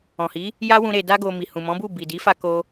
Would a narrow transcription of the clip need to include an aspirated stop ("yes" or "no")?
no